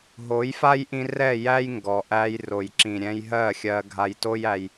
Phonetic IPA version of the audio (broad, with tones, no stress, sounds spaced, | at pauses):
ɦ o˨˦ j f a˦ j ʔ ĩ˧ r ɛ˦˨ j æ˦ j ŋ ɡ ɔ˨ ʔ æ˧ j r o˨ j ǁ ĩ˨ ɾʲ ɛ̃˧ j ɦ ɜ˦˨ xʲ ɜ˧ ɡʱ a˧ j t o˦ j æ˧ j